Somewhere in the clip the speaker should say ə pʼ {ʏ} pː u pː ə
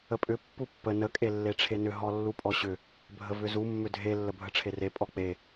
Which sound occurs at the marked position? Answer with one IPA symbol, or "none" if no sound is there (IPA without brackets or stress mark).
ʏ